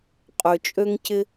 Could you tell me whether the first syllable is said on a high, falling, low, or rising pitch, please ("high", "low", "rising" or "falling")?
low